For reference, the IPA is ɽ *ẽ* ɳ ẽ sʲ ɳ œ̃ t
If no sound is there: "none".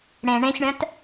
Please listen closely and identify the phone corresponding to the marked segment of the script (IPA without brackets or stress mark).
ẽ